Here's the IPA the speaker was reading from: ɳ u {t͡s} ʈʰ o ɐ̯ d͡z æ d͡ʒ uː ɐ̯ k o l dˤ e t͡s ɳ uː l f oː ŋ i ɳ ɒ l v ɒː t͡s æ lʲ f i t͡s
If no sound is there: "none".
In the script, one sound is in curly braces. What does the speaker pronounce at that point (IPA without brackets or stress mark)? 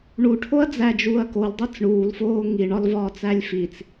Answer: none